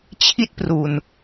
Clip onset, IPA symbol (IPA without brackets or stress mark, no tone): t͡ɕʰ